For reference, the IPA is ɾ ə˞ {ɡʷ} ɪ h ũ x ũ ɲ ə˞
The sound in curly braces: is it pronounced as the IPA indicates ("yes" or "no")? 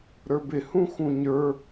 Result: no